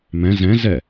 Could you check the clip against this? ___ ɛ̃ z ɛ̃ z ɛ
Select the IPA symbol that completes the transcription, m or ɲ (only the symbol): m